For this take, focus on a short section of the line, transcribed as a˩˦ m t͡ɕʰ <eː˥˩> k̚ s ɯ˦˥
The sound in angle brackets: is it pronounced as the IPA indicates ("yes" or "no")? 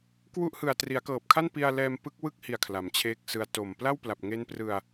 yes